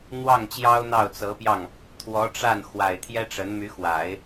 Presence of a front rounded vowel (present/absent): present